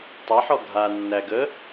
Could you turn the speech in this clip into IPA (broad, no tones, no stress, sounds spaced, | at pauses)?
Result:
tˤ æ ħ ɔ ɡʱ a nː æ ɡ ə